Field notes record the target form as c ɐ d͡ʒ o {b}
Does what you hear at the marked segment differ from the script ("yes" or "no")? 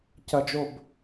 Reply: no